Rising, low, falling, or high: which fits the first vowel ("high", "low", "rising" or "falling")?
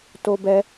high